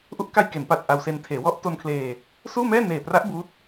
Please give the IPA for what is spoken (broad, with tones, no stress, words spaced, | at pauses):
ʔu˦˥ʔka˧jke˩˦npaː˨˩t̚ ʔa˧wse˧n tʰeː˩˦wɔ˦˥ʔto˧nkʰleː˧ | suː˥˩mɛː˥˩ neː˨˩pra˦˥ʔ buː˦˥t̚